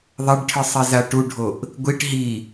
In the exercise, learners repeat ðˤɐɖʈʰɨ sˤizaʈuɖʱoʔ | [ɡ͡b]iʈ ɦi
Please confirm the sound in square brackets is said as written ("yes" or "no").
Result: no